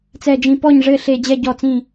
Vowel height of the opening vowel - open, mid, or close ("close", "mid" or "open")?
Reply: mid